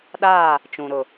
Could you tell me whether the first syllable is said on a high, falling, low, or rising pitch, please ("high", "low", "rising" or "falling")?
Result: falling